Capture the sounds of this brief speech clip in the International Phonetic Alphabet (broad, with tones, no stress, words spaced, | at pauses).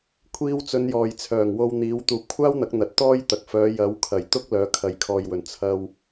kʷʰiː˧wt͡sɵ˨˧n jɔː˨j t͡sʰœː˨˩ŋ wo˧wn̪iː˨˧w t̪uː˨p̚kʷʰaː˥wn̪ɐ˨˥k̚ n̪ɐ˨˥t̚t̪ɔː˥jt̪ɐ˨k̚ fœː˨˧jɐ˨˥wkʰɐ˨˩j t̪ʊ˥k̚ lœː˨˧kʰɐ˨jkʰɔː˨jwɵ˨˩n t͡sʰɐ˧w